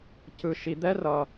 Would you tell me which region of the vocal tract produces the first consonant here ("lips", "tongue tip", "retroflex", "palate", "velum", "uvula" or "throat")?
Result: palate